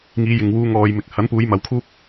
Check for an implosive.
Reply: absent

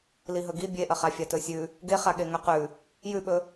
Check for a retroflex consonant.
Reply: absent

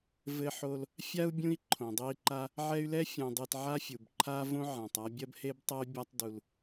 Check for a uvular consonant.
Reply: absent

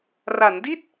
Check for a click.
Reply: absent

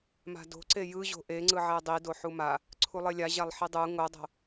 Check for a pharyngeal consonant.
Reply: present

